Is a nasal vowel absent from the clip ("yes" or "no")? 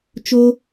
yes